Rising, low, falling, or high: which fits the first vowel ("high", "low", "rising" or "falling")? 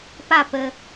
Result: falling